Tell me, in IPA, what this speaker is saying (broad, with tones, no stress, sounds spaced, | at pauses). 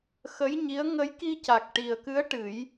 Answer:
x ə˧˥ j ɲ i˧˥ ə̯ ŋ ə˧˥ j k i˧ c a˨˩ k̚ ʈ i˨˩ ə̯ k ɨ˧˥ ə̯ ʈ ɨ˨˩˦ j